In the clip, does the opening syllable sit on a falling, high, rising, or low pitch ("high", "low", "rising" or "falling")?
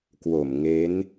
low